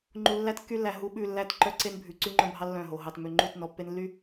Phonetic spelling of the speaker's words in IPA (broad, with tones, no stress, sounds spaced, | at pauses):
ŋ͡ǃ u˨ lː æ˦ t kː y˦ lː æ˨ ɦ u˨˦ ɓ ʉ˨ lː æ˦˨ t ǃ œ˦ ǀ e˦ n bʱ ʉ˨ ǀ y˦ ŋ͡ǃ œ̃˦ bʱ ɑ˦ lː œ̃˦˨ ɦ o˨ ɦ ɑ˨ t m ø˨ ŋ͡ǃ u˦˨ t n ɔ˨ pː e˦ n lː y˦